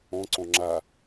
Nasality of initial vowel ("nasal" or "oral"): nasal